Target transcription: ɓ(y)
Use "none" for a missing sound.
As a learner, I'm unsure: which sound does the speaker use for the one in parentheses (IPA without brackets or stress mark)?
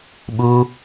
u